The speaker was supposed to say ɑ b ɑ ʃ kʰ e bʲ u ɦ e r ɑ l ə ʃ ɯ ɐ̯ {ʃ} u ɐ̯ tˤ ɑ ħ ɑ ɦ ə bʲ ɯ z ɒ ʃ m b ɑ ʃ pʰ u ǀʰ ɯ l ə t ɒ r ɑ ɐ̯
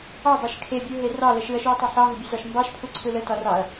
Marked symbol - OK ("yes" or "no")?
yes